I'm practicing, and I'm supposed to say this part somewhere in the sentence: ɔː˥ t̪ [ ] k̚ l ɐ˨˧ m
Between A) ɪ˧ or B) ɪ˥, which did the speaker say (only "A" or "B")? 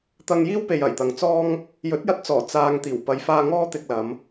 A